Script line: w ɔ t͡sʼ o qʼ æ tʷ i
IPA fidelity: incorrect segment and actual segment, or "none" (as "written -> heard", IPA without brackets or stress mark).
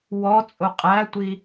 none